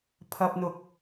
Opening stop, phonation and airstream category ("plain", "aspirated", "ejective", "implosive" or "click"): aspirated